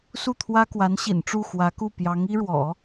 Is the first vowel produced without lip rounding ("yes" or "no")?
no